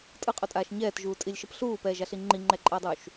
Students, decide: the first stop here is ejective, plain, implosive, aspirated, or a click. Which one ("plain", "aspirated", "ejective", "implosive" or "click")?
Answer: ejective